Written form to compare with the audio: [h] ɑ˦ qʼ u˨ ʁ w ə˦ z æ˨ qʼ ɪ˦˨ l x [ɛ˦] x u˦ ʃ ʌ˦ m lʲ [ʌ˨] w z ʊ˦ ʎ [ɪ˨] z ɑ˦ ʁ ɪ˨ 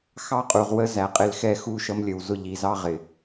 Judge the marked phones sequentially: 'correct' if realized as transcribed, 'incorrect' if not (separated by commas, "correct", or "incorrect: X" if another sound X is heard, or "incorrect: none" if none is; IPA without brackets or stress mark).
incorrect: x, correct, incorrect: ə˨, incorrect: i˨